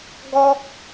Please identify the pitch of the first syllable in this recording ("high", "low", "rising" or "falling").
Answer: high